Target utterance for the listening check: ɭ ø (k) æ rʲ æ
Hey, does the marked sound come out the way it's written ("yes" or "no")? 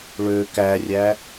yes